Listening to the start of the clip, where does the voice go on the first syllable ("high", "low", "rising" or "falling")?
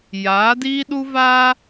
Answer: rising